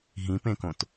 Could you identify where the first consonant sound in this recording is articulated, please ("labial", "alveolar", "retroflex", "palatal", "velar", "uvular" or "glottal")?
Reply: glottal